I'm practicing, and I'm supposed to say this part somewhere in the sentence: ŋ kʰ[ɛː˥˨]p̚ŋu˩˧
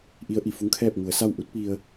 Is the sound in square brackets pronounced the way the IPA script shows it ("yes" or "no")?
yes